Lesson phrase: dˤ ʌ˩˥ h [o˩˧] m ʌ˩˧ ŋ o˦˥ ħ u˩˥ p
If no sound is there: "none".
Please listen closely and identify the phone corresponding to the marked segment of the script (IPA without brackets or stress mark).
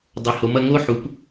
o˩˧